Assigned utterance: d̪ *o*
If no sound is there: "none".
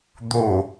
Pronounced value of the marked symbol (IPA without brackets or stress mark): o